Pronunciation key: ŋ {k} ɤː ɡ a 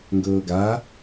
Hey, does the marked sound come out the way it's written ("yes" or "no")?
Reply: no